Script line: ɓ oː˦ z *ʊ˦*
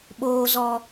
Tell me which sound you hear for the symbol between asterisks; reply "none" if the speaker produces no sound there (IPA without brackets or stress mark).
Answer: ɔ˦